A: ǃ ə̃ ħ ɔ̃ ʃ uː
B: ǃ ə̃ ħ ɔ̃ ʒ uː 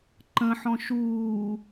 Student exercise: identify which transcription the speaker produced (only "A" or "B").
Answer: A